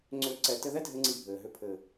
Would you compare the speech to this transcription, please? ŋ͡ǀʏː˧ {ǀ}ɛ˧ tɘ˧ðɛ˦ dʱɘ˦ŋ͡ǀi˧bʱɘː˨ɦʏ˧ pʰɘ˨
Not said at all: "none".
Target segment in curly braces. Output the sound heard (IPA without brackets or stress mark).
ǀ